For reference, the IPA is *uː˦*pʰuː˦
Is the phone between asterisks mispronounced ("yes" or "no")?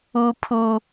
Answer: no